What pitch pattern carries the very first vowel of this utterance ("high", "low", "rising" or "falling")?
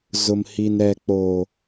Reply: low